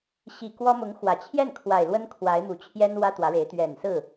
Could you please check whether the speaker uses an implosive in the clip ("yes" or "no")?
no